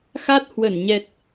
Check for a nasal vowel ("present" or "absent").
absent